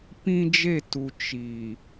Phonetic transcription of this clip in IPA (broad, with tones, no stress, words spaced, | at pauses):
pĩ˦d͡ʒe˦˨tu˨ t͡ʃi˨